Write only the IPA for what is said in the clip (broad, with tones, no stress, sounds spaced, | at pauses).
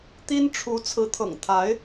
t̪ i˥ n ʈ͡ʂʰ u˧˥ t͡sʰ ɹ̩˧˥ t̪ʰ ɤ̰˨˩ ŋ t̪ʰ a˧˥ ɪ̯